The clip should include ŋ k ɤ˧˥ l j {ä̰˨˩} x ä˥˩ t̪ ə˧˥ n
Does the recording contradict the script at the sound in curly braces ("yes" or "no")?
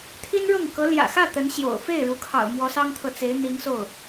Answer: no